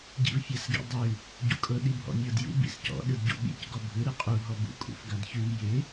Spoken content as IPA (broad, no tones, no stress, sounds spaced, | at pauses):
ɟ ḭ v fʲ a s ɡ ḭ dˤ ʉ | ɟ ṵ kʼ ɤ ɗ i bʱ ɔ̰ mʲ ɤ d j ṵ b ḭ s c ɔ̰ ɗ ɯ d ɟ ṵ ɓ ḭ c ɡ ɔ bʱ ɯ ɾ ɯ qʼ u ɦ ɔ b ṵ kʼ ṵ f ɡ a d ç ʉ v j ɪ